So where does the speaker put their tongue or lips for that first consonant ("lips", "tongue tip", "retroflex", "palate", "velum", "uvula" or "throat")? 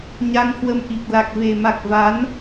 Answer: palate